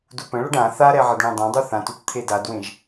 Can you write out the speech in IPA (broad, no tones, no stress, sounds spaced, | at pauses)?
d u p ə̃ ɭ ʌ ɖ ã θ a ɾ ɛ ʕ ə d ɳ ẽ dˤ ẽ dˤ u θ ã t u t t̪ʰ e d a d w ẽ ʒ